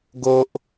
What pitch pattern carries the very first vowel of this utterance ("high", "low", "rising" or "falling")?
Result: high